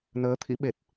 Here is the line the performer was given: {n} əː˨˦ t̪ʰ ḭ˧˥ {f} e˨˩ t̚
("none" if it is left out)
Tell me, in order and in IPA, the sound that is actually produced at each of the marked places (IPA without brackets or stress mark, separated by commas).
n, ɓ